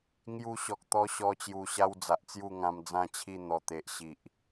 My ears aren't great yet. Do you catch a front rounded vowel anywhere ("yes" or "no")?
no